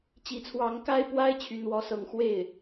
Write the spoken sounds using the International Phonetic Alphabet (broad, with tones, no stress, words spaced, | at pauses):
t͡ɕi˧˥t͡sʰwɑ˧˥ŋka˥ɪ̯pwa˥ɪ̯ t͡ɕʰy˥nwɔ˥sɤ˥ŋ xwe˥˩ɪ̯